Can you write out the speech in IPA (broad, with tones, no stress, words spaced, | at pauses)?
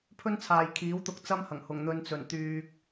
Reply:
pʰɵ˥nt͡sʰaː˨jkʰiː˨˥wt̪ʊ˧k̚ t͡sɐ˥mhɐ˨˩ŋ hʊ˨˩ŋn̪ɵ˨nt͡sɵ˨˩n t̪yː˧k̚